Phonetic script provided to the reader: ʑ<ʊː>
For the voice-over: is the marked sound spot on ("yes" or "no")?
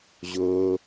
yes